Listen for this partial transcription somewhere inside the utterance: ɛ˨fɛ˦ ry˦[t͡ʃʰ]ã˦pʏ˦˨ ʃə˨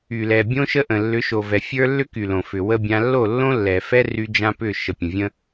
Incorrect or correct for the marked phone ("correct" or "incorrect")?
incorrect